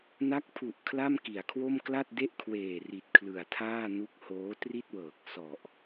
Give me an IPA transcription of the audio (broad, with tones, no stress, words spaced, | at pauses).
na˦˥k̚pʰu˨˩ʔ kʰla˥˩mki˩˦a̯kʰwo˥˩m kla˥˩t̚de˥˩ʔ kʰweː˨˩ri˨˩t̚ kʰlɯ˨˩a̯tʰaː˥˩nu˦˥k̚ hoː˦˥tri˥˩t̚wɤː˨˩k̚ sɔ˨˩ʔ